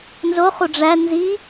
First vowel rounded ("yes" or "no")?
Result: yes